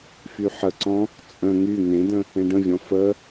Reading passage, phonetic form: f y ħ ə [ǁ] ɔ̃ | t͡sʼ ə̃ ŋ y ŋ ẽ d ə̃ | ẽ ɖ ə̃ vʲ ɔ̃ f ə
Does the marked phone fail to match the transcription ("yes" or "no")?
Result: yes